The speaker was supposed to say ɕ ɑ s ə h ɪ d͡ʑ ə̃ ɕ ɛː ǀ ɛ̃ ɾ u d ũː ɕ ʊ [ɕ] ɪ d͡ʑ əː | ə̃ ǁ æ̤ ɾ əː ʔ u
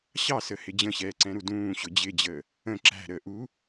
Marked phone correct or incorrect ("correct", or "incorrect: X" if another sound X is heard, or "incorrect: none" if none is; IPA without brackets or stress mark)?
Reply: incorrect: d͡ʑ